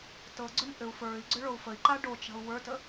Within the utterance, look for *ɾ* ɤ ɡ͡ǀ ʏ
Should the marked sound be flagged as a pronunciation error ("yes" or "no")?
yes